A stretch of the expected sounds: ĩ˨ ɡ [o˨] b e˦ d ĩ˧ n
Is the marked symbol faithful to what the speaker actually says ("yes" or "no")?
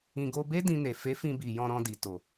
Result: no